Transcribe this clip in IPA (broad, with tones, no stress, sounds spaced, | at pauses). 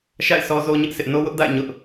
ʃ a̰˦˨ ɪ̯ s ɔ˦ z o˦ ɲ ɪ˦ ʔ s ɪ˦ ʔ n o˦ w ʊ˦ ʔ d a̰˦˨ ɪ̯ ɲ ʊ˦ ʔ